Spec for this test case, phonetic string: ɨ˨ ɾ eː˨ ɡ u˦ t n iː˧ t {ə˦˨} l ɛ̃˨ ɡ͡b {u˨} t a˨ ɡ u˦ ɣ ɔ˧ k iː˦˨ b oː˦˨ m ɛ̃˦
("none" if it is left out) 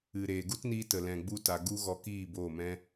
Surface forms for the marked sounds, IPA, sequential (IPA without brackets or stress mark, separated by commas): ə˨, u˧